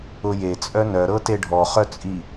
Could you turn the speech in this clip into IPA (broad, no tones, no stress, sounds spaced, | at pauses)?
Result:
ʊ j e t͡sʼ œ n œ ɾ ɤ t e ɖʱ ɔ χ œ t͡sʼ i